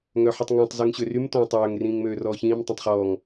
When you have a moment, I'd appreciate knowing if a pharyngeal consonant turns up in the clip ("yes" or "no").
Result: yes